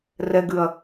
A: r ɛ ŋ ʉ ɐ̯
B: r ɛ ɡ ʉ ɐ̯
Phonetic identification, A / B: B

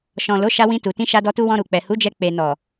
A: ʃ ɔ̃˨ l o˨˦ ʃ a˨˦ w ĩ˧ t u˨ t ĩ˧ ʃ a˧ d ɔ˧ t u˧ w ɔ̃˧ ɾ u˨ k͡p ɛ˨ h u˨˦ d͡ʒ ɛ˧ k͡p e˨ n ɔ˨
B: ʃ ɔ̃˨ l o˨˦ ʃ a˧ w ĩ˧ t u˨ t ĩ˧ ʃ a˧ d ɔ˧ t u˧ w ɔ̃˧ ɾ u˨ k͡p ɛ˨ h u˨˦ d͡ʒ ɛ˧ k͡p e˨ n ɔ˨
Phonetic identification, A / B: B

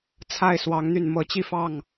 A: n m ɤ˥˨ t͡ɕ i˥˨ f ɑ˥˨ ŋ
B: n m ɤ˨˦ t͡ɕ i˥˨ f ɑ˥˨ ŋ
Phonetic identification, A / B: B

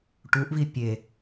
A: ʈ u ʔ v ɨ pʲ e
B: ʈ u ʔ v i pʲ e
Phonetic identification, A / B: B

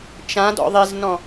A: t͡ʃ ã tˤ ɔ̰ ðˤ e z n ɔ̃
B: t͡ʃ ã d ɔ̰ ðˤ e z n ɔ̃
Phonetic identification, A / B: B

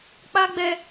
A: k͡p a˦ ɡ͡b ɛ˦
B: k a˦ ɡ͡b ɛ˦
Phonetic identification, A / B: A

